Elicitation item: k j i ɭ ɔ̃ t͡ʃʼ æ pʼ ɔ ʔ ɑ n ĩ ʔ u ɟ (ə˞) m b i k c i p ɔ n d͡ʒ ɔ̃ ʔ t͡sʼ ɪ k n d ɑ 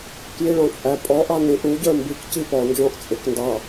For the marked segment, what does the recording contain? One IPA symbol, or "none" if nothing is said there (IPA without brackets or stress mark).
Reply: ə˞